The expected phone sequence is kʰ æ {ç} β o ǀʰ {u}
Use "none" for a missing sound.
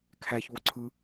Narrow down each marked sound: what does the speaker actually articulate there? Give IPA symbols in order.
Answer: ç, ɯ

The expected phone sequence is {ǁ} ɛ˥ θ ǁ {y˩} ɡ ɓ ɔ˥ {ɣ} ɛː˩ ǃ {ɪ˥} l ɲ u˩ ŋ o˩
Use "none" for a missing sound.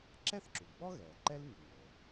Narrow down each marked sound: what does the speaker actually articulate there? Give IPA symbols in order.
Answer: ǁ, u˩, ɣ, ɛ˥

